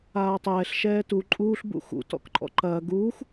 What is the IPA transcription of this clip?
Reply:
aː tˤ ɛː ɬ ʃ ɛː t u ǃʼ uː ɬ b ṵ x ṵ t ɔ̰ k ǃʼ ɔ̰ ǃ ɐː ɡ uː x

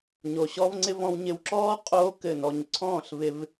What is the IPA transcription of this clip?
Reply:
ɲ o˧ ɕ ɔ˦ v ŋ͡ǀ ɪ˦ v ɔ̃˧ w ɲ ɪ˧ w ǁ ɔː˦ qʼ oː˦ k ɘ˦˨ n ɔ˧ ɲ ǀʰ ɔ̃ː˦˨ ɬ v ɪ˧ v

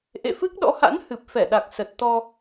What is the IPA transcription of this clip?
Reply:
ʔ ḛ˧˨ f ɨ˦˥ k̚ ɗ ɔ̰˧˥ h a̰˧˥ n h ɨ˨˩ p̚ f ɛ˧˩ ɗ a˨˩ k̚ s ə˨˩ t̚ t̪ ɔ˧

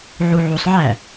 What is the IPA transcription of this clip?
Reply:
ʕ u ʕ u sˤ ʕ æ

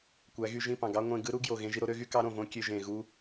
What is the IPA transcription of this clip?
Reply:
kʷ æ˨˦ ɣ y˧ ʒ ĩ˦˨ p ɑ̃˨ ɡ ɑ˦ ŋʷ ẽ˧ ɡ ɯ˦ ɾ u˦ ɡ j o˨ ɣ ẽ˧ ʒ i˧ ɾ o˧ ɾ ø˦ ɣ y˦ k ɑ˦ ɾ õ˨ v õ˦ kʲ ø˧ ʒ ẽ˨ ɣ u˦

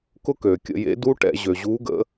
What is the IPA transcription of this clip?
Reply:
k ʊ˦˥ k øː˩ kʲ ə̰˧˩˧ j ḛ˨˦ d u˦˥ ʈ ɛ̰˧˩˧ ʑ ø˩ ʑ uː˨˦ ɡ ə̰˨˦

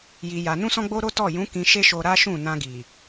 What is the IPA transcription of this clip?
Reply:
j i˧ j a˧ n ũ˦ s ɔ̃˦ ɡ͡b o˦ ɾ o˦ t ɔ˦˨ j ũ˨˦ k ĩ˧ ʃ e˦ ʃ o˧ ɾ a˦ ʃ ũ˦˨ n ã˧ ɡ i˨

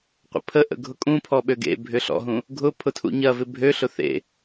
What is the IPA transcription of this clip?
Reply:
qʷ ə̰ pʰ ə ʔ ə̰ ɡʱ ʊ kʼ ũ pʰ ɔ ɓ ø ɡ ḛ bʱ ʏ ɬ ɔ̰ ɦ ũ | ɡʱ ʊ pʰ ʊ tʰ ṵ ɲ ɐ v ɪ bʱ ø ɬ ʊ θ ḛ

